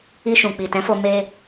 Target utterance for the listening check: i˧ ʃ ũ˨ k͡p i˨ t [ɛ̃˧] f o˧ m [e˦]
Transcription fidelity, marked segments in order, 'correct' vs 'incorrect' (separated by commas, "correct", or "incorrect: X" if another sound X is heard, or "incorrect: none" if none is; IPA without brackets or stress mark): incorrect: ɛ̃˨˦, incorrect: e˧